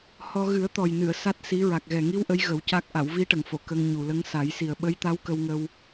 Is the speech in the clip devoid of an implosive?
no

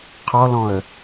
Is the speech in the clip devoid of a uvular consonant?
no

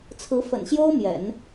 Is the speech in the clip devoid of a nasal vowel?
yes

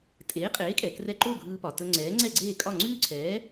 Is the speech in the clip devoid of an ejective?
no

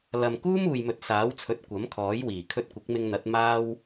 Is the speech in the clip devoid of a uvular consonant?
yes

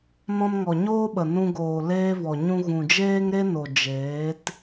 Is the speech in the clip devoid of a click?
yes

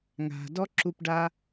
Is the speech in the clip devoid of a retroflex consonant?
no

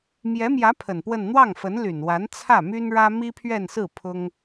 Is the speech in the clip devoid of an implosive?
yes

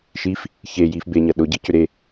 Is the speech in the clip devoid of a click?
yes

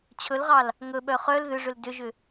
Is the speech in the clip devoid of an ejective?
yes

